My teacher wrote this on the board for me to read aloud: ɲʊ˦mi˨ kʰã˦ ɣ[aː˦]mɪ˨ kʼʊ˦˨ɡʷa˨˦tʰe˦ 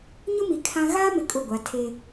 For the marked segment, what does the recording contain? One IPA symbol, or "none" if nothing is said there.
aː˦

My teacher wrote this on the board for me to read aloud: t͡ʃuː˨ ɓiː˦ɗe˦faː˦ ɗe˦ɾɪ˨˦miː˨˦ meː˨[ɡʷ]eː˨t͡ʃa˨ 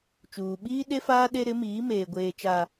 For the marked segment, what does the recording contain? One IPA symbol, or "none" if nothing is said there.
ɡʷ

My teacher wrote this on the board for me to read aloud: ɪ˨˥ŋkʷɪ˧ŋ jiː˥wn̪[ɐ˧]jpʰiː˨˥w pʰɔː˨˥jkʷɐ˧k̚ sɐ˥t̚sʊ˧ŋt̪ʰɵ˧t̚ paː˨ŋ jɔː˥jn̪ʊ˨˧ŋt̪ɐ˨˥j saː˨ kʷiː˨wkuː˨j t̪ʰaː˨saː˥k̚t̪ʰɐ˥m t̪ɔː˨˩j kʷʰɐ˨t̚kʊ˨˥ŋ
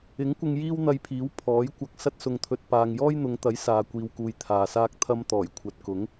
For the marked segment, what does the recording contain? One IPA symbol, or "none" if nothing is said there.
ɐ˧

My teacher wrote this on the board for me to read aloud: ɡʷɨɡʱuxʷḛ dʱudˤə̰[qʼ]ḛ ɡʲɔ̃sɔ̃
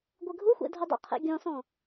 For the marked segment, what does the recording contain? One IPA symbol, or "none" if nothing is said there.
qʰ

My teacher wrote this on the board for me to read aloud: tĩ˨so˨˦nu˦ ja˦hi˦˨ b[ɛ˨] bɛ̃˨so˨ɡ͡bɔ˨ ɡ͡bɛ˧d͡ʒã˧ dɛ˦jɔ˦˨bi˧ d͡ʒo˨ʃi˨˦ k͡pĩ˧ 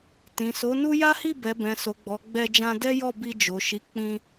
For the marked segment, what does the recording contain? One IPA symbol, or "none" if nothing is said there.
ɛ˨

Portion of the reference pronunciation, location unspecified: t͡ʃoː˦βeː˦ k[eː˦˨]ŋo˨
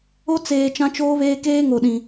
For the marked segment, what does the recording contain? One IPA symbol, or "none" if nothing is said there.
eː˦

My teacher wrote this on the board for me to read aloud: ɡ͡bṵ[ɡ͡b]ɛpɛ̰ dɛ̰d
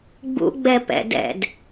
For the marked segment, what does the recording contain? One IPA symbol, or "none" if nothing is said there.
ɡ͡b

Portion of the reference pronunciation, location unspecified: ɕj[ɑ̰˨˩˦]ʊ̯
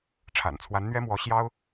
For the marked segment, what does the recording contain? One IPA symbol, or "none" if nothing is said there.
ɑ˥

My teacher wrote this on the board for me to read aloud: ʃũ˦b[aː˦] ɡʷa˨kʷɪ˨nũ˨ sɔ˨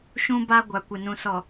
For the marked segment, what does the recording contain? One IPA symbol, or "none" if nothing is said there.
a˦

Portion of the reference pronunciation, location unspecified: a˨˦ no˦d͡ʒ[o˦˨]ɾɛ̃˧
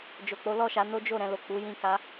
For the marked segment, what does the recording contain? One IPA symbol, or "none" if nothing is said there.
o˦˨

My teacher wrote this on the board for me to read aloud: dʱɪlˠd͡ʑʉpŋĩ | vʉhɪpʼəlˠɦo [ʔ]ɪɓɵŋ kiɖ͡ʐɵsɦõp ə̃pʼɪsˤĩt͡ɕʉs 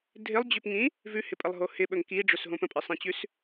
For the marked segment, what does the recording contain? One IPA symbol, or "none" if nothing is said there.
h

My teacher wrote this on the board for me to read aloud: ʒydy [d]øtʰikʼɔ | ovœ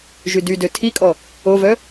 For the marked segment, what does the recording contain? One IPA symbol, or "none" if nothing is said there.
d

